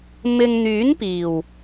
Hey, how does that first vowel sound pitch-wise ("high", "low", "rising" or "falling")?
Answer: low